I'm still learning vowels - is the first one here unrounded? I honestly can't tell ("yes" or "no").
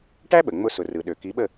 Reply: yes